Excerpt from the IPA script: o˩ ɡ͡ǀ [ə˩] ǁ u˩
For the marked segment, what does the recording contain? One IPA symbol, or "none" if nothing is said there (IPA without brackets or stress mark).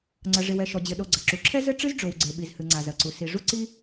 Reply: ɐ˩